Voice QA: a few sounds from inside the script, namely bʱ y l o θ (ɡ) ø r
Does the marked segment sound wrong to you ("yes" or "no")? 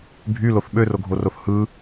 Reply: yes